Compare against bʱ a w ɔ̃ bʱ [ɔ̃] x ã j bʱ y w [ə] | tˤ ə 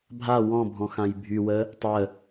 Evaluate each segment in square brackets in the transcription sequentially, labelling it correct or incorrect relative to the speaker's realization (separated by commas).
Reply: correct, correct